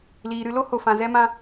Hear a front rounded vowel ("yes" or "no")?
no